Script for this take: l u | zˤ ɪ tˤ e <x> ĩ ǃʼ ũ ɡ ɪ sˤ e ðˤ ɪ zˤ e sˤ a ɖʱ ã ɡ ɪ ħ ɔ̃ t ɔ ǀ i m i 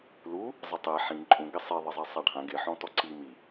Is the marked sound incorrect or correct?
incorrect: ħ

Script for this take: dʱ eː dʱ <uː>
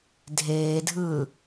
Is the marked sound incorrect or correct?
incorrect: ɯː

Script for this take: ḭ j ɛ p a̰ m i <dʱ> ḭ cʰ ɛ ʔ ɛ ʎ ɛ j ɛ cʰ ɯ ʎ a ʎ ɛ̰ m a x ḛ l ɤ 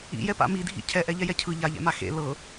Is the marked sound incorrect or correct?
correct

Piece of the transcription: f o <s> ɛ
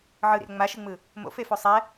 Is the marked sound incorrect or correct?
incorrect: sˤ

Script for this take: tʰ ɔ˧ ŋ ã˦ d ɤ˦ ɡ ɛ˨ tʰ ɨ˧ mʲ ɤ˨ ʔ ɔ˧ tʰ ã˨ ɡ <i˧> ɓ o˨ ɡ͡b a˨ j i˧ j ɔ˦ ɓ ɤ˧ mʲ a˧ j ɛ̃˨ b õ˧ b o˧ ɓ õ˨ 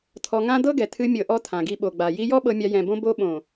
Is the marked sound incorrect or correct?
correct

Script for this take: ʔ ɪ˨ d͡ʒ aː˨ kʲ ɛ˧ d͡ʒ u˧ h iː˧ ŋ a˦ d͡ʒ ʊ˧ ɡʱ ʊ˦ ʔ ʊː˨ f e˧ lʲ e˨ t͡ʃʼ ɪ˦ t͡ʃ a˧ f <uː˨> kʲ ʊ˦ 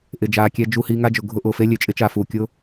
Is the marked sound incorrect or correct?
correct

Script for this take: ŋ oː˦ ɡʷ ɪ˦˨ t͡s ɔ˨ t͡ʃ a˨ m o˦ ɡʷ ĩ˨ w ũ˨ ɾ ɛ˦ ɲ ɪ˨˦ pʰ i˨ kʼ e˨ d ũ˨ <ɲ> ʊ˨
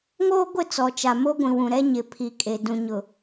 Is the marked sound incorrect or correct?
correct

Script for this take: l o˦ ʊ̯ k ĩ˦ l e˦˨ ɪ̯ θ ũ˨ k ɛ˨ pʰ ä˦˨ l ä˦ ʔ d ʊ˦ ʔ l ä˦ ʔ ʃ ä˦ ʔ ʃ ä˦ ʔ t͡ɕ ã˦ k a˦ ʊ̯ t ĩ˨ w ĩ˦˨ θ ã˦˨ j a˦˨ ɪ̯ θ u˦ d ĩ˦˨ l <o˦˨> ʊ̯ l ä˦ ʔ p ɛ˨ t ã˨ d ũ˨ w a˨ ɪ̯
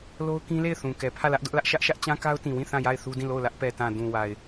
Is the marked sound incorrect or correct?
correct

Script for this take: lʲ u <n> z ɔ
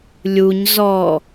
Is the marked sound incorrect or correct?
incorrect: ɲ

